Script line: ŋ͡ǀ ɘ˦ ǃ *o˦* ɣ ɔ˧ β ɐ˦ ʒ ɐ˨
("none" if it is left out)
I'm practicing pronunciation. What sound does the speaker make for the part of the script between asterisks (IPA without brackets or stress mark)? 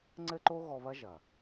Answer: o˦